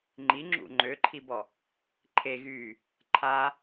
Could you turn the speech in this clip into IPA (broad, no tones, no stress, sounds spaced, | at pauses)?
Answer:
ŋ͡ǃ i ŋ͡ǁ ṵ ŋ͡ǃ ø ǃʰ i b ɔ | ǃʰ e ɣ yː | ǃʰ a